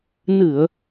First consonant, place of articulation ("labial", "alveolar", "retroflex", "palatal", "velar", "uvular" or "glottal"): alveolar